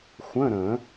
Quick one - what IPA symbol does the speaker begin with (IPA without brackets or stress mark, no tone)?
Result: xʷ